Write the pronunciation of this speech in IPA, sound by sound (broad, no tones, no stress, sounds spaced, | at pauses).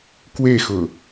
k w e x ʊ